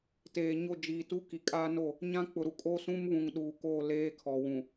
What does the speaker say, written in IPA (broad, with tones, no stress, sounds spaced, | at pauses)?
t eː˨ ɲ o˦˨ d͡ʒ iː˨ t u˦ k i˨ kʼ aː˦ n o˦˨ | ɲ ã˦ k͡p ʊ˨ ɾ u˨ kʼ o˦ s ũ˦ m β ũ˨ ŋ ɗ uː˨ k oː˦˨ l eː˦ kʰ ɔ˨ w ũ˨